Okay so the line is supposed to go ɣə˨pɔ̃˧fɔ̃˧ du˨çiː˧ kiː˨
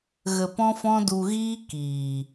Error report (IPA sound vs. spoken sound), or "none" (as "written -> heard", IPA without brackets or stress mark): ç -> ɣ